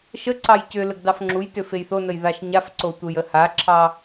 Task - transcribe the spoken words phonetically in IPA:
ʃəǀɑj cʏləɡ dɑfŋ͡ǁujtʏ fejθonəj ðaʃɲafǀo tʷejəhaǁʰɑ

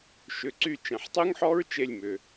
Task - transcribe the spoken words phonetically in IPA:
ʃʏ˩˧˩ǀy˦˨ t͡ʃẽ˩ħtˤy˦˥ŋħɔ˦˥ɹ t͡ʃe˦˨lʲmʏ˩

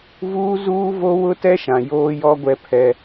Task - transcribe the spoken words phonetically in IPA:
vuː˦zuː˦ vo˦wʊ˦tɛ˦ʃã˨ joː˦jɔ˦ɡʷɛ˦pʰɛ˦

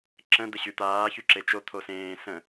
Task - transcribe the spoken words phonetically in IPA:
ǁə̃ d̪əɕyt̪aː çyǁet͡ʃo t̪ʰosẽː sə̃

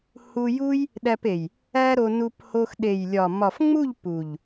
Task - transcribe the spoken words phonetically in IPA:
hu˧ju˦j | ɗæ˧pe˨j | æ˦ɾo˧ nu˧pho˧x ɗe˨jlʲɒ˨ mɒ˨fŋ͡mu˦˨ʎ pu˨ʎ

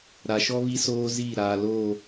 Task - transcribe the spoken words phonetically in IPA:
ɾa˨ʃɔ˦ βi˦soː˦ziː˦˨ ɾaː˨loː˦˨

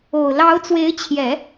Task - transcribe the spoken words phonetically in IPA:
o˨˩ʊ̯ lɑ˧˥ʊ̯t͡swe˧˥ɪ̯t͡ɕʰjɛ˨˩˦

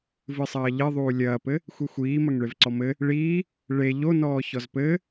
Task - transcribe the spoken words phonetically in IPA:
vɨsˤɐːʎɘ ðˤuːlʲɐːpɘ | xʷixʷiː mɐŋɭevǀɔmɘ | ɭiː | ɭe ʎonɔː çɔzpɘ

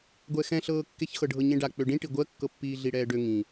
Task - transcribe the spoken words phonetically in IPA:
ɡʷɛxɛ̃ɬɤːkːeç xɤɖʱɤɲẽɖa k͡pøɖĩʈi ɡʷɜkːɤpːiː ɮiɽɛːɖø ŋĩ

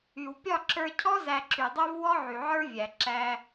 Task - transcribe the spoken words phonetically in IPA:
y˨wpʲɒ˦˨ǁə˞˧cʰɔ˦ zæ˧ǁy˨dˤə˞˦v wɔ˦ʕy˨ʕə˞˦ vʲæ˨ ǁæ˧

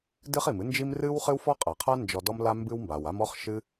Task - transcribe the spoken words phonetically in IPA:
dɨ˥χi˩mɨ˥nd͡ʒi˥m rɨ˥w χɨ˥wfɔ˥ qʼa˩qʰa˥ nd͡ʒɔ˧dɔ˥mla˥ mbɨ˥wmba˩w a˥m ɔ˥χ ʃɨ˥

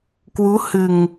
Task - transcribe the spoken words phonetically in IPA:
kwu˨˦hɨ˨˩ŋ

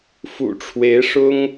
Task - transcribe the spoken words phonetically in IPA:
fṵ˨˩ʈ͡ʂʰwe˧˥ɪ̯ʂʊ˥ŋ

